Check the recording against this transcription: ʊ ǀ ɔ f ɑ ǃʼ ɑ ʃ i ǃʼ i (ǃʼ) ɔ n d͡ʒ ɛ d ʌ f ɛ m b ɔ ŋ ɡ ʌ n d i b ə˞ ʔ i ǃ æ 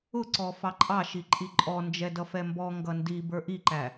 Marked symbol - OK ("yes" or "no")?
yes